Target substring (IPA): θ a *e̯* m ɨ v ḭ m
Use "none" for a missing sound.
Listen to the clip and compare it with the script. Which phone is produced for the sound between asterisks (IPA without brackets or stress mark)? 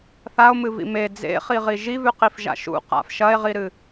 o̯